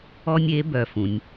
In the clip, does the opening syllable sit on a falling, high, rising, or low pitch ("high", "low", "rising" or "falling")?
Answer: high